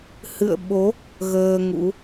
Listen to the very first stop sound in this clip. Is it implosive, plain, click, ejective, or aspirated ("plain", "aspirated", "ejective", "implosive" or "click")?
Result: implosive